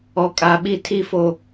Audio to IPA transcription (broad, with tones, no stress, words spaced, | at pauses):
ɔ˨kʼa˨ɓi˦˨ tʰi˦fo˦